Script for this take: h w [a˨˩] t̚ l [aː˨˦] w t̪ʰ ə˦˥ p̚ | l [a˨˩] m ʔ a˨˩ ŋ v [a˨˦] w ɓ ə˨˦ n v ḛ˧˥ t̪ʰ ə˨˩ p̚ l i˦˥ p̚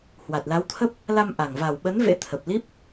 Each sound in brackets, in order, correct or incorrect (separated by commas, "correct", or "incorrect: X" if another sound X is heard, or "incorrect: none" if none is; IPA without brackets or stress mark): correct, incorrect: a˨˦, incorrect: a˧, incorrect: a˨˩